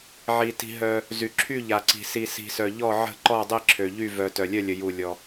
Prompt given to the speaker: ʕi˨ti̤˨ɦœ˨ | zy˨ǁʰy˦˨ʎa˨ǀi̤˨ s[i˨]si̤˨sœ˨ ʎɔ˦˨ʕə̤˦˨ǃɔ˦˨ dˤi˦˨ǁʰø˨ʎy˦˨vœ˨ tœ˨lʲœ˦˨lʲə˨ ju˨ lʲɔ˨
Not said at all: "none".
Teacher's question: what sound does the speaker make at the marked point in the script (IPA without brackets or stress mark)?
i˨